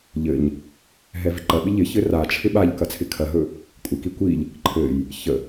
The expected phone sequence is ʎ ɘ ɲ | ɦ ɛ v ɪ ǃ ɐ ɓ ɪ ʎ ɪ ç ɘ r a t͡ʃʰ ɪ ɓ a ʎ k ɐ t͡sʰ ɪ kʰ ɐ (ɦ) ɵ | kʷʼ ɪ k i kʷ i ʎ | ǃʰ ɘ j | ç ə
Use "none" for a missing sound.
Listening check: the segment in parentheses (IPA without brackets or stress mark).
ɦ